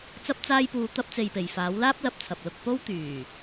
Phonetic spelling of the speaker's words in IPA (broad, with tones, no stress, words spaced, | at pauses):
t͡sɐ˥p̚t͡saː˥jpuː˧ t̪ɐ˥p̚t͡se˧jpe˨j faː˨˥wlaː˥p̚lɐ˨˥p̚t͡sʰɐ˨p̚ lʊ˧k̚po˥wt̪yː˨˩